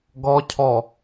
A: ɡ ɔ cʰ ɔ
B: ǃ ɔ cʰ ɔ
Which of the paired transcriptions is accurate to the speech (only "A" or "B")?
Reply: A